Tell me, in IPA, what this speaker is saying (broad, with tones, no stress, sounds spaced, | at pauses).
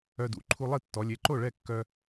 œ˧ d ṵ˩˧˩ ǃʰ u˧ lˠ i˥˩ tː ɔ˩˧ lʲ e˩˧˩ ǃ o˥˩ ɭ ɛ˥˩ kː œ˧